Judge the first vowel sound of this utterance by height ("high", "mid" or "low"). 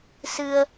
high